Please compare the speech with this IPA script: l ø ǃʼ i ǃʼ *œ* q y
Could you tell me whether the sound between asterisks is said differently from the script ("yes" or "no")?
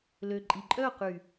no